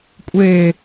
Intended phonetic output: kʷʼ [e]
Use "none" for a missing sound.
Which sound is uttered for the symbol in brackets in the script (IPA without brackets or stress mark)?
e